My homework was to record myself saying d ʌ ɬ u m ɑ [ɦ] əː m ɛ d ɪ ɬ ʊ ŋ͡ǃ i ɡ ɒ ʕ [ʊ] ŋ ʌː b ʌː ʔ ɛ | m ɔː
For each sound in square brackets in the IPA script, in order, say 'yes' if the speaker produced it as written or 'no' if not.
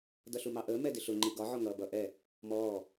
no, no

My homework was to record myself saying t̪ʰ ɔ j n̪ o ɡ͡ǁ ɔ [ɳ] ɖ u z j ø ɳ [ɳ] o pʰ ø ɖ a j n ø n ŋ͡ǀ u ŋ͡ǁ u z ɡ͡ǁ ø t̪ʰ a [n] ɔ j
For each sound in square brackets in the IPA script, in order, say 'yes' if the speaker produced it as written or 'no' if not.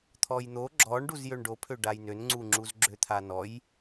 yes, no, yes

